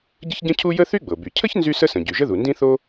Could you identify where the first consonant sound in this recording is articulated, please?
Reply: palatal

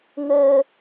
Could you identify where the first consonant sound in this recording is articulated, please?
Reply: velar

